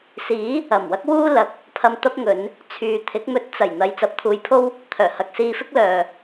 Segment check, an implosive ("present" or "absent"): absent